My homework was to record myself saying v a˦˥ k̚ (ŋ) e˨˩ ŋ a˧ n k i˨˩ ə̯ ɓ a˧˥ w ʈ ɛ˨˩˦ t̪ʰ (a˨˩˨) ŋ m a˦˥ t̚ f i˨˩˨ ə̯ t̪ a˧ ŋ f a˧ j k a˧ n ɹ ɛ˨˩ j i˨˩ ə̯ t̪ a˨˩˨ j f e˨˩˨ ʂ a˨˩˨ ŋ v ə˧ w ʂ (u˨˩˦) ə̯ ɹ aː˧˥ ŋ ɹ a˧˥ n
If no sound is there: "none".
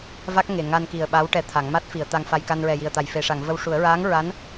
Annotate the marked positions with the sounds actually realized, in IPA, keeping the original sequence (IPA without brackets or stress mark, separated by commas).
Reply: ŋ, a˨˩˦, u˨˩˦